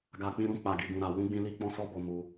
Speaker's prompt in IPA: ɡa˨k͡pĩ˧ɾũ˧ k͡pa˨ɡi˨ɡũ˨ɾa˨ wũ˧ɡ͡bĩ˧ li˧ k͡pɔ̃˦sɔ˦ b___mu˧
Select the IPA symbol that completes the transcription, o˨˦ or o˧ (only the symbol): o˧